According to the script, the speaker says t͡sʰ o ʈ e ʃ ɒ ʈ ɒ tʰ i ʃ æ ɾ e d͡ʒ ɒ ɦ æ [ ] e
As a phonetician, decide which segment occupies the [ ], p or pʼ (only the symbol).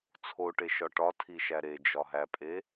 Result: pʼ